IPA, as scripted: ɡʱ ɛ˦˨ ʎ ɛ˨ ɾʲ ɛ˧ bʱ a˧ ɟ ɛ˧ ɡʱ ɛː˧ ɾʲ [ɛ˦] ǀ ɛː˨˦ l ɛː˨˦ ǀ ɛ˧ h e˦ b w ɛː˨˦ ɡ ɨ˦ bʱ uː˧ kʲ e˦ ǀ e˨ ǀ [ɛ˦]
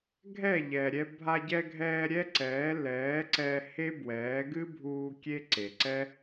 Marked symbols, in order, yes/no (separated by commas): yes, yes